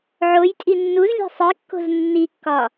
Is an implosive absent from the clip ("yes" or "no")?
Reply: yes